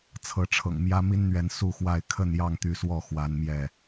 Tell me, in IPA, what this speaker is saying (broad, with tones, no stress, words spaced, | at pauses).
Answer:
t͡sʰɤ˨˦ʈ͡ʂʰɤ̰˨˩ŋ mjä˦mi˦nn̪ɥɛ˨˦n su˥˨xwa˥˨ɪ̯ kʰə˥˨njɑ˥˨ŋt̪y˨˦swɔ˥˨ xwa˦nmjɛ˥˨